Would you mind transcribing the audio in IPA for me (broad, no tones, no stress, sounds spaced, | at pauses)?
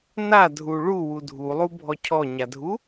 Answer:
n a dʱ u ɭ u w u dʱ u lˠ u bʱ ɔ cʰ ɔ ɲ a dʱ u